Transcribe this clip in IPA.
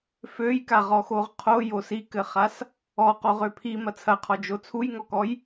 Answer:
f ø j k a ʁ ɔ x o ʁ qʰ o j o s i k ɘ χ a s | ɔ q o ʁ ø pʰ i m ɐ t͡sʰ ɐ qʰ ɔ d͡ʒ o t͡sʰ u j ŋ ɔ k ɔ j

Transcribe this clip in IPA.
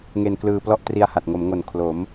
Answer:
ŋ e˧ n k l ɯː˧ p l ɔ˥˩ ʔ t r i˦˥ a̯ h a˨˩ t̚ ŋ o˩˦ m ŋ o˨˩ n kʰ l o˩˦ m

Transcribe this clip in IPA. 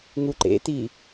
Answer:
ŋ u ǃ ḛ t i

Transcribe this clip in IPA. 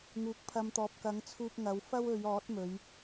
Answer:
ŋ uː˨˥ k̚ pʰ ɐ˧ m t̪ ɔː˨˥ p̚ k ɐ˨˥ ŋ t͡sʰ uː˧ p̚ ŋ ɐ˨˧ w f ɐ˥ w ɵ˨˧ ɥ ɔː˨˥ t̚ m ɵ˨˧ ɥ

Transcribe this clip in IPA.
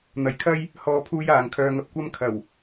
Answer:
n̪ ɐ˨˥ j kʰ ɐ˥ j | h ɔː˧ pʰ uː˧ j aː˨ ŋ kʰ œː˧ ŋ ɐ˧ p̚ kʷ ɐ˥ m kʰ ɐ˨˩ w

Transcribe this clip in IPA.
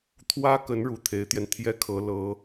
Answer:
t̪ʰ w ä˥ k ə˧˥ n ɻ u˨˩ t̪ʰ e˧˥ ɪ̯ t̪ j ɛ˧ n t̪ʰ j ɛ˥˩ kʰ ɤ˧˥ l ɤ˧˥

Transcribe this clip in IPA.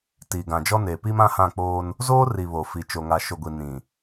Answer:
t i˨ ɡ ã˨ d͡ʒ ɔ˦ n eː˨ p i˦ m ã˦ h ã˦˨ k͡p oː˦ n | z oː˦ r i˨ β o˨ f i˨ t͡ʃ o˨ ŋ a˨ ʃ o˨ ɡʷ i˨ n ĩ˨

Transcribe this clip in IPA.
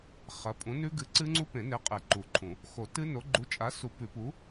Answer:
χ ɐ˨˥ pʼ ũ˨˥ n ʉ˦˥ ɡ ɨ˨˥ ǀ ɨ˦˥ ŋ͡ǀ u˦˥ p ẽ˨˩˦ n e˨˥ qʼ e˨˩˦ ǃ u˨˩˦ ǃʰ ũ˨˩˦ | x o˨˩˦ t ɨ˦˥ n o˨˥ ɡ͡ǃ u˨˥ t͡ʃʼ a˨˥ s u˨˩˦ p ʉ˨˩˦ p u˨˥

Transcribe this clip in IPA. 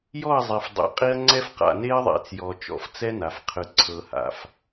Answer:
j ɔ˦˨ ɐ̯ zˤ e˨ f dˤ ḛ˨ qʼ i˦ ɐ̯ ŋ͡ǀ ɛ˦ f q a̰˨ n e˦ ɐ̯ ðˤ ḛ˨ t͡s j ɔ˨ t͡ʃ ɔ̰˨ f t͡s ɛ˦ n a˨ f qʰ ɯ˨ ǀʰ ɤ˨ h a̰˨ f

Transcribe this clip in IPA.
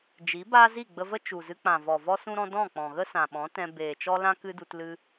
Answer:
d͡ʒ i˨˦ b aː˦ z i˦˨ ɡ͡b ə˧ v ə˦ t͡ʃ u˨ z ɨ˧ k͡p ã˨ v ɔ˨ v ɔ˦ s ũ˦ ɾ ɔ̃˦ d ɔ̃˦˨ k͡p ɔ̃˨ ɣ ə˦ s ã˨ ɓ ɔ̃˨˦ t ɛ̃˧ b eː˨ t͡ʃ ɔ˦ l ã˦ k ɨ˦ d u˧ t l ɨ˧

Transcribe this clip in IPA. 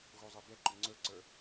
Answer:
ɣ o zˤ ɛ b ɛ ǃ ʊ ŋ͡ǀ ə˞ ǀ ə˞

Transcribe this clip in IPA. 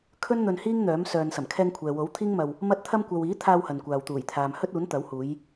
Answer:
kʰ ɵ˥ n n̪ ɵ˧ n h iː˥ ŋ n̪ œː˨˥ m s œː˨ n s ɐ˨˩ m kʰ ɛː˧ ŋ kʷʰ ɛː˨ w o˨˥ w t̪ʰ iː˥ ŋ m ɐ˧ w | m ɐ˧ t̚ t̪ʰ ɐ˧ m kʷ ɐ˨ w iː˨˥ t̪ʰ aː˧ w h ɐ˨ n kʷ aː˨ w t̪ uː˨˩ j t̪ʰ aː˨ m h ɵ˥ t̚ uː˨˥ n t̪ ɐ˨˥ w h uː˨˧ j

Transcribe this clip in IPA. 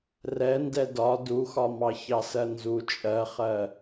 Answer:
r ɛ n d ɛ d ɒ d u x ɒ m ɑ ç ɑ s ɜ n z u t͡ʃʼ ɜ χ ɜ

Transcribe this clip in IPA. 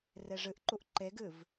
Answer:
r e ʐ ɨ ʔ ǃ u ʔ ǃ e ɡ ɨ v

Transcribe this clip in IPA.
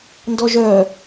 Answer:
n d ɔ ʒ œ

